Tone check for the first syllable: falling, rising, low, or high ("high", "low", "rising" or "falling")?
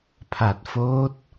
low